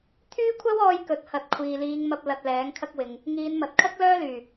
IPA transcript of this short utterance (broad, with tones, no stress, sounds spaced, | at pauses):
t̪ʰ yː˥ kʷʰ ɐ˥ w ɔː˧ j k ɵ˨˥ t̚ h ɐ˨˥ t̚ kʷʰ iː˨ l iː˨˧ ŋ m ɐ˧ p̚ l ɐ˧ t̚ l ɛː˨˥ ŋ kʰ ɐ˥ k̚ w ɪ˨ ŋ | ŋ iː˨˧ n m ɐ˨ t̚ kʰ ɐ˥ k̚ l œː˥ l yː˨˩